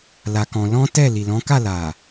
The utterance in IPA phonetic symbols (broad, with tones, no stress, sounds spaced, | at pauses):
l a˧ k ɔ̃˧ l ɔ̃˦ t ɛ˦˨ l i˨ l ɔ̃˨˦ k a˦˨ l a˨